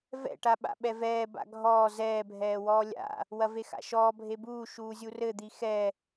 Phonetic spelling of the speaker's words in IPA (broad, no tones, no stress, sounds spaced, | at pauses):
v ɛ̰ ʈ a ɓ a̰ ɓ ɛ v ɛː b a̰ ɡʱ ɔː z ɛː bʱ ɛː w ɔː lʲ a̰ | w ɐ v e x a̰ ʃ ɔː bʱ e b uː ʃ uː zʲ u r ɘ d̪ i x ɛ